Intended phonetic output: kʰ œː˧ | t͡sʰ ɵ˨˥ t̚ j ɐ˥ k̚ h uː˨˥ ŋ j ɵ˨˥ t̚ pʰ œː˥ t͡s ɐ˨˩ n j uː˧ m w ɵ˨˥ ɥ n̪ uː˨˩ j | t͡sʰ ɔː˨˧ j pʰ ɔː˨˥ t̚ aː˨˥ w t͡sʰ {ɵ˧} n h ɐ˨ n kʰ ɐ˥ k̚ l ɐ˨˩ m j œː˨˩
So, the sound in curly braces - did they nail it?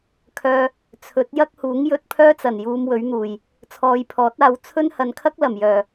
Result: no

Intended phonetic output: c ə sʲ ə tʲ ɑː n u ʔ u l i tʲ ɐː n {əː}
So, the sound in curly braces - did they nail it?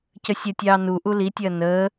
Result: yes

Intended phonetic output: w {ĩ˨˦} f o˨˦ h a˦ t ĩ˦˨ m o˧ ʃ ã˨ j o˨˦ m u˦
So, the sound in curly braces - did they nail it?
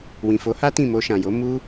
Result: no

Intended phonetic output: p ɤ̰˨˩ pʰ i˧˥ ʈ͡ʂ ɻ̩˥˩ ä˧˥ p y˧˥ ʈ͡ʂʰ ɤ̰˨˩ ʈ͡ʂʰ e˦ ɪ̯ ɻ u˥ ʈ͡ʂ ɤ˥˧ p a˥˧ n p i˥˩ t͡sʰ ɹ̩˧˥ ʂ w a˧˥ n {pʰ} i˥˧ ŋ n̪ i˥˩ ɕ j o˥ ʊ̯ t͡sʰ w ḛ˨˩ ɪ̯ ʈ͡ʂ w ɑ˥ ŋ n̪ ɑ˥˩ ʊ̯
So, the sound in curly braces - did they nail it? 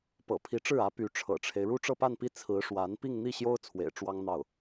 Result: no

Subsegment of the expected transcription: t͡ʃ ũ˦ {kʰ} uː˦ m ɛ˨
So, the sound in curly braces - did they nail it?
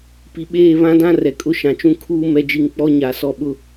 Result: yes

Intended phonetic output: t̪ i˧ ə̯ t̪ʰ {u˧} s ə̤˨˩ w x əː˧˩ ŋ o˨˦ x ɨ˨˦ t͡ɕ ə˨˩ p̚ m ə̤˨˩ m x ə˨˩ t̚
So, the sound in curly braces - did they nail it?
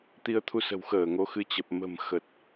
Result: yes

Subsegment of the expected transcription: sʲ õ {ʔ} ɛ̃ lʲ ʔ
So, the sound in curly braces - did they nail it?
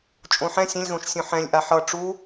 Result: no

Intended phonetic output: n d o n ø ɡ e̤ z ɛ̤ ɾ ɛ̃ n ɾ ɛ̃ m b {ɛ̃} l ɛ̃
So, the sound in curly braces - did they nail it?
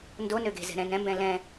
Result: yes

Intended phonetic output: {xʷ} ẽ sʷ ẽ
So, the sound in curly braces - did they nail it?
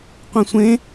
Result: no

